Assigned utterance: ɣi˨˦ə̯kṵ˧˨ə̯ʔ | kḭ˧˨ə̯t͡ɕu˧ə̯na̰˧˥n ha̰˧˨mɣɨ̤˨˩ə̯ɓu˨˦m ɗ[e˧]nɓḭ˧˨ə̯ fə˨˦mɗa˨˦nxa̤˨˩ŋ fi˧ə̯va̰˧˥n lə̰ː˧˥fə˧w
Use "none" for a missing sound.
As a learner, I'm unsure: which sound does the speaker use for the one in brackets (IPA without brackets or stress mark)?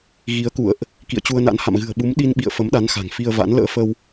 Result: i˧